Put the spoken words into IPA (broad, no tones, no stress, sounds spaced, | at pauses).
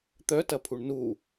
t̪ œ t ɐ pʰ u ɳ n u